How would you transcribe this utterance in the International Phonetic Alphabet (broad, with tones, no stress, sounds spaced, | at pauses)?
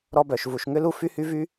ɾ ɔ˥ b œ˩ ʃ v u˩ ʃ ŋ ʏ˥ l u˥ f y˥ h y˥ v y˥